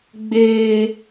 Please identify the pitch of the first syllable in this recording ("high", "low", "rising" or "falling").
high